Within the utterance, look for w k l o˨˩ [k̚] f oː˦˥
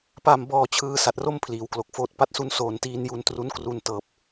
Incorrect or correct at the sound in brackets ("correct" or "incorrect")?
correct